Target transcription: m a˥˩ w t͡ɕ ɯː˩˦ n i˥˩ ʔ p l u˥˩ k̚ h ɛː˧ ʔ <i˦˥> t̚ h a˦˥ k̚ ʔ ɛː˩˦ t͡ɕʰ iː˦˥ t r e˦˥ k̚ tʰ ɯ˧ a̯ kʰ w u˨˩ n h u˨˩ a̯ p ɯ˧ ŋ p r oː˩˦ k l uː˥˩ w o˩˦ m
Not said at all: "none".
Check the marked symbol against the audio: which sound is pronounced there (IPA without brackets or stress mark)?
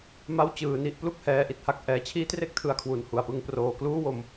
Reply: i˨˩